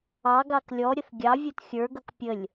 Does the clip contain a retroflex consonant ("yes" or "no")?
no